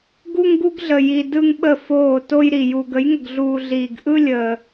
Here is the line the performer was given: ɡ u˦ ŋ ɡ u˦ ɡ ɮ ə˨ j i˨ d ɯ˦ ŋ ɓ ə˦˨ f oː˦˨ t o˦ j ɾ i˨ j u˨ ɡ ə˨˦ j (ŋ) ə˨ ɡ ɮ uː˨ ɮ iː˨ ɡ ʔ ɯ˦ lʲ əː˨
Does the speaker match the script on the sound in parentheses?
yes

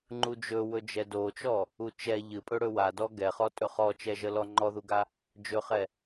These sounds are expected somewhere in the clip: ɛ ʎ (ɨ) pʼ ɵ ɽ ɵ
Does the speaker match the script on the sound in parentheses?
yes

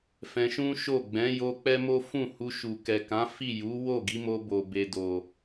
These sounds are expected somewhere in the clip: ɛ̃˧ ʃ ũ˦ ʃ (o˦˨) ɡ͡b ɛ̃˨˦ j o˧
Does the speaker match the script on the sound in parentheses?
yes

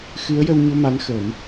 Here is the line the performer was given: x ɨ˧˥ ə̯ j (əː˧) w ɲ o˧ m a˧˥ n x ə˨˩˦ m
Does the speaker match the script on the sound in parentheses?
no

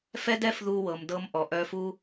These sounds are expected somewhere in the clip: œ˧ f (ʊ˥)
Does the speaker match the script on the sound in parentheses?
no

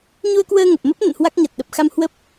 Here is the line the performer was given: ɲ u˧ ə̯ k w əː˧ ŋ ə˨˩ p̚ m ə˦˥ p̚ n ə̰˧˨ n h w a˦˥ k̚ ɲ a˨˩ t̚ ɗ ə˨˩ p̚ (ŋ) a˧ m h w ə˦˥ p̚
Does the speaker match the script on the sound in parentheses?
no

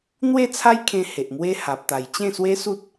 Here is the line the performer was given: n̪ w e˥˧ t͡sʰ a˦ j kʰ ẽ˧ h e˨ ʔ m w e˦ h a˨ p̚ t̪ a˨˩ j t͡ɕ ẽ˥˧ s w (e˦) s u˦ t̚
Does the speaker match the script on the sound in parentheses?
yes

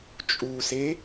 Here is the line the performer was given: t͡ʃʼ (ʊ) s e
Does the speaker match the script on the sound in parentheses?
no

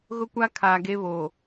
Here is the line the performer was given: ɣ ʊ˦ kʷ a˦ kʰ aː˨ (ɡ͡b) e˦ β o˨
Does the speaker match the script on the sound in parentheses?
no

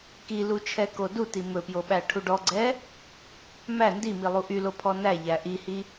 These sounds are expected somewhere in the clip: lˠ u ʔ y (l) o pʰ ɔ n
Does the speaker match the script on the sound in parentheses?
yes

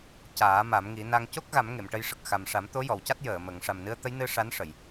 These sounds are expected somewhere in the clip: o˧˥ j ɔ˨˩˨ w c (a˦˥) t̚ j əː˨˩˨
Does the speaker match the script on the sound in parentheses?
yes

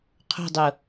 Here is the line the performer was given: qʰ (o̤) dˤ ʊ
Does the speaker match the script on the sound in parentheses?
yes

